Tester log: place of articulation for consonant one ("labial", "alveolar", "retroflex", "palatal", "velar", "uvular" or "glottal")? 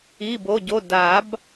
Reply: labial